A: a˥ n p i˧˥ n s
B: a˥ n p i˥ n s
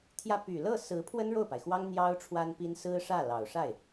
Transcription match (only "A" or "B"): B